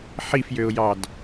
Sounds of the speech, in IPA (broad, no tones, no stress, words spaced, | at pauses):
ħifjøʊ̯jɑd